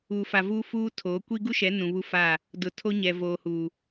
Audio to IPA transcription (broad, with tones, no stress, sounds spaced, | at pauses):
u˨ f a˨ v uː˦ f uː˦ tʰ oː˨˦ kʷ i˦ ɡ u˦ ʃ ɛ˨˦ n ũ˨ β u˦ f a˦˨ | d ʊ˨ tʰ o˦ ɲ ɛ˨ v oː˨ h uː˨